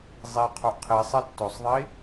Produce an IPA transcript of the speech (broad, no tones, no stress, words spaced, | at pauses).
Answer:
zˤi qʰoʔqʰisˤɛ tːosˤðˤi